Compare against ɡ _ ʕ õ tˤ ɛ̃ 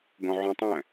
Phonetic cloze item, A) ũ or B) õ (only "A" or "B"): B